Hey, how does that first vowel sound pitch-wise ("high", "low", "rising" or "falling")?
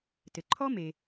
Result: low